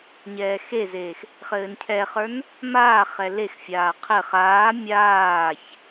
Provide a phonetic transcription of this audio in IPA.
ɲ ɛː x e z eː x | χ ɘː n cʰ ɛ χ ə˞ n | m aː χ ɛ l e x fʲ aː qʰ ɘ χ aː mʲ aː ç

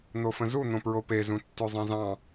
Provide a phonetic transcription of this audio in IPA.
n̪ o f ə̃ z u n̪ õ p ɹ o p e z ũ tː ʉ zˤ ẽ z ɑ̃

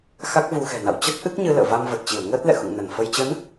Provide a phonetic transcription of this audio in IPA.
x a˦˥ k̚ v u˧ x ɛ̤˨˩ n a̰˧˨ w t͡ɕ ə˦˥ t̚ ʔ ɨ˦˥ k̚ ɲ ɨ˧ l ə̰ː˧˨ v a˧ m v ə˨˩ t̚ t͡ɕ i˧˩ ə̯ ŋ əː˦˥ t̚ l ɛ̰˧˨ x ṵ˧˨ ŋ n ə˧˩ n f ə˧ j t͡ɕ ə˨˦ n

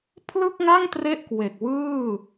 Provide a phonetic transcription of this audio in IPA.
pʰ l ɯ˥˩ k̚ ŋ a˥˩ ŋ t r e˥˩ ʔ k w e˨˩ k̚ w ɯː˥˩

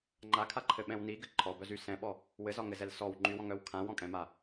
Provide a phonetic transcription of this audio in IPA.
ŋ͡ǃ a kʰ a ǃʰ ɘ ɓ ɛ̃ w n i ɡ ɘ ǃʰ ɔ b œ z y s ɛ̃ ɓ ɔ | w ɘ z ɒ ŋ ɘ z ɛ l s ɔ w ŋ͡ǃ y w ɔ̃ ŋ œ w kʰ ã w ɔ̃ kʼ ɛ̃ m a

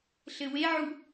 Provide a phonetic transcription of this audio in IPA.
ɬ ɘ w e ʕ u

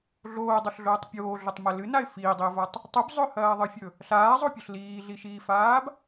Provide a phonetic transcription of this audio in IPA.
ɮ oː dˤ o ɬ ɮ oː tˤ pʲ oː ɮ ɵ tˤ m ɐ l ɨ n a ɪ̯ f iː dˤ i ʊ̯ v a tˤ | tˤ ʉ b zˤ ɵ h ɐː ðˤ ɨ fʲ ɵ | ɬ aː zˤ o pʲ ɵ ɬ l iː ɮ i ʃ iː f aː b

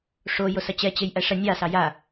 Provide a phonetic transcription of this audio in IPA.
ʂ o j o s ɐ t͡ɕ ɛ t͡ɕ e j ʔ æ ʂ ɐ nʲ ɑ s ɑ j a

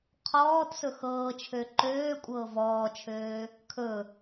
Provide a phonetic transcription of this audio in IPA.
qʰ ɔː t s ɵ x ɤː t͡ʃʰ ø ǃ øː kʷʼ ɤː v ɔː t͡ʃʰ øː | kʰ ɵ

